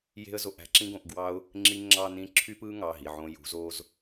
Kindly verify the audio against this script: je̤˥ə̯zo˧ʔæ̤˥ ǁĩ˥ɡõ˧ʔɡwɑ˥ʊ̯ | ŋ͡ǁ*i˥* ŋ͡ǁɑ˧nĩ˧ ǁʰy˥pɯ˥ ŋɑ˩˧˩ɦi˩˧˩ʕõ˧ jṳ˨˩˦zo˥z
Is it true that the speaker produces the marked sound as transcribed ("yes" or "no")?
no